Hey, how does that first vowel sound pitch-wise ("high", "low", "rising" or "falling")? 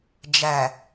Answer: low